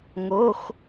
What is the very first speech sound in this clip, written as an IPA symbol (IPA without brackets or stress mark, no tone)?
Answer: ŋ